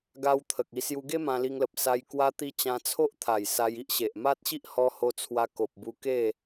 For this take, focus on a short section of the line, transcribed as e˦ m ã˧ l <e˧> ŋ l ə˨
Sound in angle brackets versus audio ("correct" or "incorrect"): incorrect